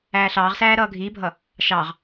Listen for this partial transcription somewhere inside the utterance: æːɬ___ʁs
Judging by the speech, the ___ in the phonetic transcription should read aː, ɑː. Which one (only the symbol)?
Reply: ɑː